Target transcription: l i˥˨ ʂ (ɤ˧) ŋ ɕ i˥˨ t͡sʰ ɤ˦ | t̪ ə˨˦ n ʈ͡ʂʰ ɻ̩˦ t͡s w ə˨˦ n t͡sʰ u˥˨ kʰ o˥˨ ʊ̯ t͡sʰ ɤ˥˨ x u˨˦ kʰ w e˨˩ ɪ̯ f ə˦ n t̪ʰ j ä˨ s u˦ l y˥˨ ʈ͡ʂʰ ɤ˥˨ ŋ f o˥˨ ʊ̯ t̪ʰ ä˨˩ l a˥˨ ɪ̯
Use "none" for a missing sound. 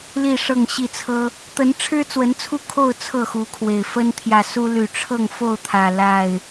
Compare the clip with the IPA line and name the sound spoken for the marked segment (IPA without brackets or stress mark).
ɤ˥˨